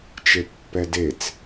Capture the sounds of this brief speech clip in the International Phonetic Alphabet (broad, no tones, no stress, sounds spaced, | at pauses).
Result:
t͡ʃ e pː ɛ d e t͡s